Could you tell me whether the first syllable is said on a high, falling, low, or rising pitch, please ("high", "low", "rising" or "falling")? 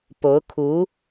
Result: rising